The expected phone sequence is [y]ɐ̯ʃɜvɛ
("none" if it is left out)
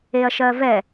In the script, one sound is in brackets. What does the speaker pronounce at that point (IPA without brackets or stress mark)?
e